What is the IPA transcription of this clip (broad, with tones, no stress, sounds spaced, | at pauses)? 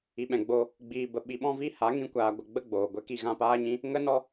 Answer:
i˨ ɓ ɛ̃˨ ɡ͡b o˧ | ɡ͡b iː˧ b ə˧ ɓ i˧ ɓ ɔ̃˦ v i˦ h a˨˦ ŋ ĩ˦ kʷ aː˧ ɡʷ ə˧ ɡ͡b ə˦ ɡ͡b oː˨ ɡʷ ɛ˧ k i˨ ɣ ã˧ p aː˦ ɲ ĩ˦ | ŋ ə˦ n ɔ˦